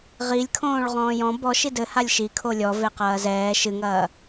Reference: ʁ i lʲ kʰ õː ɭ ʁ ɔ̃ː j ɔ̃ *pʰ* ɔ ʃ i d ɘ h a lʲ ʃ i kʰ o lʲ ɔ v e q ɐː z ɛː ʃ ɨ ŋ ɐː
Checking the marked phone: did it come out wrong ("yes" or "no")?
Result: yes